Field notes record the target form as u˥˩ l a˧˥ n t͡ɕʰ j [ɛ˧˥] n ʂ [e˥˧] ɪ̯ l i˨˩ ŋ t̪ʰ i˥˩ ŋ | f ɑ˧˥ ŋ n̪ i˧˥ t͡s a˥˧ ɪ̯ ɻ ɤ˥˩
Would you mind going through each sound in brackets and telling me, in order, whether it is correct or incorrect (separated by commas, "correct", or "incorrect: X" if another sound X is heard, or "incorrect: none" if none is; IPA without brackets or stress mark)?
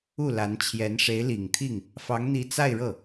correct, incorrect: e˧˥